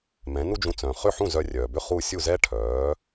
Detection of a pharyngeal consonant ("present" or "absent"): present